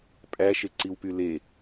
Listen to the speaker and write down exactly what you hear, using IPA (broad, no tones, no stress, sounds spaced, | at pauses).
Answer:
pʼ æ ʃ e ǀ i w p y l e